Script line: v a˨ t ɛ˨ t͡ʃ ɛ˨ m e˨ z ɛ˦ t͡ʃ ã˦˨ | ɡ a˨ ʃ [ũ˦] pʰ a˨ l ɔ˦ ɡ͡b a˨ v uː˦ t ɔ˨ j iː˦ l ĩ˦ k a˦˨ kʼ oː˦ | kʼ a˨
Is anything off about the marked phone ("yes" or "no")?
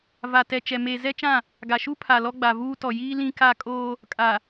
yes